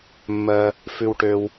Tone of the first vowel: low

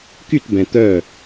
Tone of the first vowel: falling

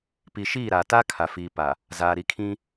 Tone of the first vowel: low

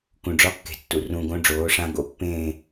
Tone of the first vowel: low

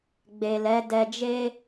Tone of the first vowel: low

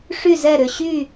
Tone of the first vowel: falling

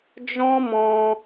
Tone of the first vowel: high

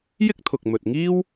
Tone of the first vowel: high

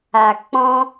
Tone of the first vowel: low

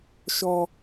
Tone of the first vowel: high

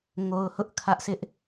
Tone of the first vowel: low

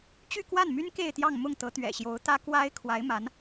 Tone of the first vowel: falling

